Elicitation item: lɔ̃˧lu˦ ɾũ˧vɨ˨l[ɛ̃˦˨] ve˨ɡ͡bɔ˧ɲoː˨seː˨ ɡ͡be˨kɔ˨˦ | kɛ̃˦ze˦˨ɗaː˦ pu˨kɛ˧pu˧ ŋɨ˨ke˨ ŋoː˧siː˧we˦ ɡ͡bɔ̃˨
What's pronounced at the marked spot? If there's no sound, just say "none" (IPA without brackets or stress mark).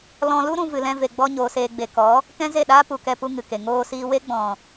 ɛ̃˧